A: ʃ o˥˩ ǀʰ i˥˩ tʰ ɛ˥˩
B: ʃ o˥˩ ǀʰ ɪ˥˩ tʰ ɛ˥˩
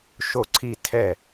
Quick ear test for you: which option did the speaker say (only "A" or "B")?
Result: A